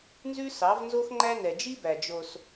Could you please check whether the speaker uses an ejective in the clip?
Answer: no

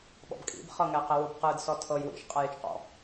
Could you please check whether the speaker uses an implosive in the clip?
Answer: yes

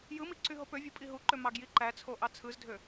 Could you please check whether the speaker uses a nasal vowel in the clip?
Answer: no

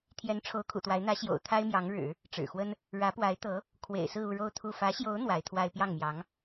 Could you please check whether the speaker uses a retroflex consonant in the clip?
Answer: yes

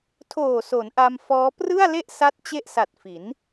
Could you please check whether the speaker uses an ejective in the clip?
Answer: no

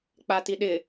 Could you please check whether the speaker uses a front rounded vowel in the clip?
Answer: no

